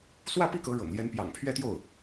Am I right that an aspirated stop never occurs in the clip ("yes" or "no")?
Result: no